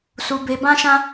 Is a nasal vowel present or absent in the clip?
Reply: present